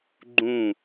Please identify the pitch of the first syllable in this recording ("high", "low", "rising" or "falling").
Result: falling